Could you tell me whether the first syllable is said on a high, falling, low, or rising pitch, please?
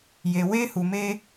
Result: low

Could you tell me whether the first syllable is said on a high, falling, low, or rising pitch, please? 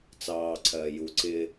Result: low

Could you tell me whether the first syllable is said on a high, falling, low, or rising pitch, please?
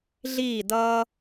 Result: falling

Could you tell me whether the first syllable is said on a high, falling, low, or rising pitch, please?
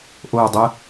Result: falling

